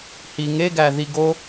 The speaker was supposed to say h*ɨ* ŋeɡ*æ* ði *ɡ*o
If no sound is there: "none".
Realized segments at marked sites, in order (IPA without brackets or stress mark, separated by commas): i, æ, ɡ